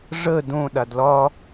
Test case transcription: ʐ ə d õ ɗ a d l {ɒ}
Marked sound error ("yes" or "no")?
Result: no